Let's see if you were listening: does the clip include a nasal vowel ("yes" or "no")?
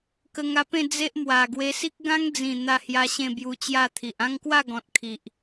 yes